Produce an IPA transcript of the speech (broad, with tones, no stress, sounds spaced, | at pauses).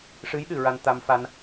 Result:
ʂ ɨ˧˥ j ɗ ɨ˨˩˨ ɹ a˧ n t̪ a˧ m f a˧ n